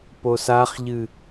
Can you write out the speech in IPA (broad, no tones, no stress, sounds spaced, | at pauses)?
p o s a χ ʎ ɨ